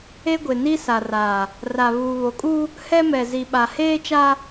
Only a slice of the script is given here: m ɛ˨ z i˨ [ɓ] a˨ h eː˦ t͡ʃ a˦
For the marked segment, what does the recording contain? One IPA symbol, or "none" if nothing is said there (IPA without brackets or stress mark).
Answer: ɓ